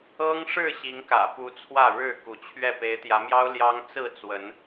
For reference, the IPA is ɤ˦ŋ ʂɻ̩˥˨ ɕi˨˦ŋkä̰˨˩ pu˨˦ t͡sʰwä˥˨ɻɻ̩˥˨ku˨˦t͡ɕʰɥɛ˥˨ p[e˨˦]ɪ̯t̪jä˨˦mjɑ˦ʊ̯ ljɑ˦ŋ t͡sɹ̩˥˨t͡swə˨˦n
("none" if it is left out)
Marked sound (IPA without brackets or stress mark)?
e˨˦